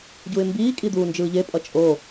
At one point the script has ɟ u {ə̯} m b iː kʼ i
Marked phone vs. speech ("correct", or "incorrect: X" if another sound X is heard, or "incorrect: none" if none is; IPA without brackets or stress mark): incorrect: ɪ̯